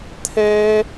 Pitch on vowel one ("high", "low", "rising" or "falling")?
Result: high